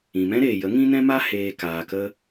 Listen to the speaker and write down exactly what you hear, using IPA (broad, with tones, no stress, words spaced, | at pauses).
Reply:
ĩ˨mɛ̃˦ɾeː˨jə˨˦ ŋĩ˦nɛ̃˦ma˦ heː˨ kaː˨kə˧